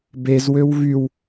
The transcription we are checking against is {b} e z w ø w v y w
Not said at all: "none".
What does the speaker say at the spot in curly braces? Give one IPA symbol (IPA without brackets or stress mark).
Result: b